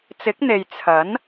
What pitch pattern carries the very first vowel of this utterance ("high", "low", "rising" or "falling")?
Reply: rising